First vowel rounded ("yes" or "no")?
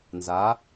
no